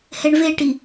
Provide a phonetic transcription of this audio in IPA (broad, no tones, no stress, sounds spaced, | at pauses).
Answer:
h ɛ ɳ v e ʈ i